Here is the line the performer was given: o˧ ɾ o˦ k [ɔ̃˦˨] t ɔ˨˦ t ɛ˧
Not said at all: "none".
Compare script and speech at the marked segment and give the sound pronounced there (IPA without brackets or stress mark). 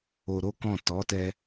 ɔ̃˦˨